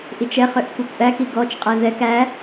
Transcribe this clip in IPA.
ʔ i t͡ʃ ɛ χ ø ʔ kʷ i kʷ ʔ æ k i ɡ ɔ t͡ʃ qʼ ɛ ð ɛ k æ

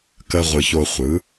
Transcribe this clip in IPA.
k ə˧ ʁʷ ɯ˨ ç o˧ χʷ ɯ˨˦

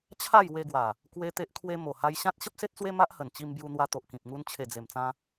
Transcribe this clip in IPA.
t͡ɕʰ a˥˧ j w e˧ ɡ w a˨˩ | k w e˦ t̪ e˦ ʔ kʰ w e˦ m o˨˩ h a˧ j ɕ ã˦ t̚ ɕ ə˦ p̚ s e˦ t̚ t͡s w e˦ m a˦ ʔ h ə˨˩ n t͡ɕ i˧ m b j u˧ n̪ w a˧ t̪ o˨ ʔ k ĩ˨ p̚ ŋ u˧ n t͡ɕʰ e˨˩ d͡z e˨˩ m t͡s ã˧

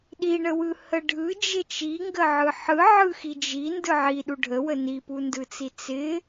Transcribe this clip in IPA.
ɗ i ɳ ə w ɯ h ə ɖʱ ɯ d͡ʒ ɪ t͡ʃ i ŋ ɡ ə ʕ ɯ ħ ɯ ʕ ɯ x i d͡ʒ i n d ɯ ʕ i ɗ u ɖʱ ə w ə n i p u n d ɯ t͡s i t͡s ɪ

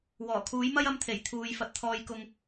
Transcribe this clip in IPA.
w ɔː˨˩ kʰ uː˨˥ j m ɐ˥ j ɐ˧ m t̪ʰ e˨˩ j t̪ʰ uː˨˧ j f ɐ˨ t̚ t̪ʰ ɔː˨ j k ʊ˨ ŋ

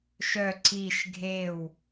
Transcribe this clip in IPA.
ʃ œ ǀ i ʃ ɡʱ e w

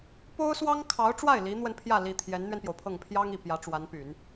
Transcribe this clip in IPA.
p o˥ ʊ̯ s w ɑ˥ ŋ kʰ ɑ˧˥ ʊ̯ ʈ͡ʂ w a˥˩ ɪ̯ l i˧˥ n̪ w ə˧ n pʰ j ä˥˩ l i˥ t̪ʰ j ɛ˧˥ n n̪ ɥ ɛ˧ n p j o˩ ʊ̯ pʰ ɤ˥˩ ŋ pʰ j ɑ˥ ŋ i˨˩ p j ä˧˥ ʈ͡ʂ w a˧˥ n p y˨˩˦ n

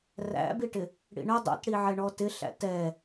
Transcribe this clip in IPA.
r æ̰ b i ʈ ɪ | ɽ ḭ ɳ ə dˤ ɛ̰ t ɽ i ʕ ɛ ɳ ɔ t ɪ ɬ æ̰ t ɛ

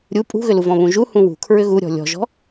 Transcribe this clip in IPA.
ɾʲ u pʼ ṳ ɣ ʏ l u v ɔ̃ β ũ ʒ u h ũ w ṳ kʰ ɹ ʏ ɣ u ɾʲ ɔ̤ lʲ ɔ̤ ʒ ɔ̤

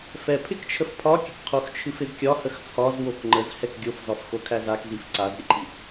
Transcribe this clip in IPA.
f ɛ pʰ ɪ k t͡ʃʰ ə f pʰ ɒ kʲ ə k qʰ o x t͡ʃʰ ɨ f ɪ z kʲ ɒ h ə x t͡sʰ ɒ z w o k ŋ͡ǃ ə z h ɛ k ɡʲ o f z ɒ f x o kʰ æ z a k z i f ǀ a z ɾʲ ə ǃʰ i

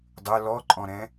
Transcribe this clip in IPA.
dˤ ə˞ l ɔ ǃʼ ɔ̃ ɾ ɛ̃

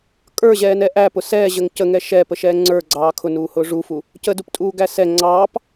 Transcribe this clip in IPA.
kʼ ə˞ ʑ ɛː n ɛ ʔ æ p ʊ s ɛː ʑ ə ŋ c ə ŋ ɛ ʃ ɛː p ə ʃ ɛː ŋ͡ǀ ə˞ ɡ͡ǀ ɑː kʰ ʊ n uː h ʊː ʐ u f u | c ə d u p tʼ uː ɡ æ s ɛ ŋ͡ǀ ɑː p

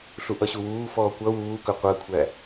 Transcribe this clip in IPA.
ɬ u ʔ ʌ ɕ u w uː f ɔː kʷ ʌ w uː k ɵ qʷ əː kʷʰ æ

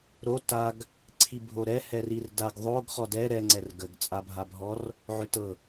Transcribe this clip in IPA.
ɾ o t a ɡ | ǀʰ i bʱ o ɾ ɛ h ɛ r i r d a ɡ ðˤ o ɡ χ ɔ d ɛ ɾ ɛ ŋ͡ǀ ɛ r ɡ ə ɡ t͡sʼ a bʱ a bʱ ɔ r | ʕ ʏ t ɤ

